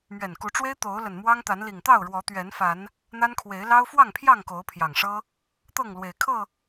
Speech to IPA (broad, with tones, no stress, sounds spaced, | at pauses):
m ɥ ɛ˨˩ n k u˨˦ ʈ͡ʂ w e˦ ɪ̯ t̪ o˨˦ ʊ̯ l ə˨˩ n m w ɑ˦ ŋ t̪ a˨˦ n l i˨˩ ŋ t̪ ɑ˥˨ ʊ̯ ɻ w ɔ˨˦ t̪ ɥ ɛ˨˦ n f a˨˦ n | n̪ a˦ n kʰ w e˨˦ ɪ̯ l ɑ˦ ʊ̯ f w ɑ˥˨ ŋ pʰ j ɑ˥˨ ŋ k o˨˦ ʊ̯ pʰ j ɑ˨˩ ŋ ʂ ɤ˦ | t̪ ɤ˥˨ ŋ l w e˨˩ ɪ̯ kʰ ɤ˥˨